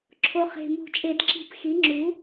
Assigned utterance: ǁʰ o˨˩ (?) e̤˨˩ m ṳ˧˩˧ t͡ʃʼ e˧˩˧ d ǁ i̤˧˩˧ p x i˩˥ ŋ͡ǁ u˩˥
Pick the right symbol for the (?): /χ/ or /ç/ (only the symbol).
χ